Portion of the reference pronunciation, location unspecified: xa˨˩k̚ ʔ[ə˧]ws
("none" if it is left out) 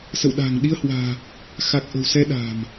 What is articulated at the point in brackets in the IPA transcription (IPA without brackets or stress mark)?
ə̤˨˩